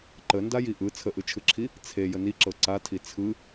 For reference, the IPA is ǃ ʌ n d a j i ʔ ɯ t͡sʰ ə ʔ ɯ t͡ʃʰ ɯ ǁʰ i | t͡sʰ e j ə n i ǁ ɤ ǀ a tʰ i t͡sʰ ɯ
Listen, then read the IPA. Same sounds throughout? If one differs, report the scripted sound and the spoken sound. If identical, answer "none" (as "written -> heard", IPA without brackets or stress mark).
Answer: ʌ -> ə